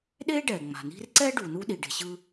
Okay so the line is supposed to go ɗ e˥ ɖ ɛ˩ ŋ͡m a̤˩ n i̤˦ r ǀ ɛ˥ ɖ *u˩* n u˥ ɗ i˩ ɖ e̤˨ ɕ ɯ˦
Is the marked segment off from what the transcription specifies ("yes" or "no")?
no